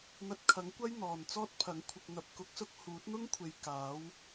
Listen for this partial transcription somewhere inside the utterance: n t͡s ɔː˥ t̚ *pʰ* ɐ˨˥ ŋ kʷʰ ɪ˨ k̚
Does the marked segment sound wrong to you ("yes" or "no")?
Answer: no